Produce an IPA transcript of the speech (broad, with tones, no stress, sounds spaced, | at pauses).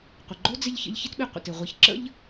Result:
qʷ ɪ˩ ɡ͡ǃ o˥ d͡z ɪ˥ ʎ ç ə̰˦ ʎ ç ɪ˥ t ɓ i˨ qʷ ə̰˩ t ɪ˩ ʁʷ i˨ ç ǁ ə̰˥ ʎ